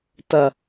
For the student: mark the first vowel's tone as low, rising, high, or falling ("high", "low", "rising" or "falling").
low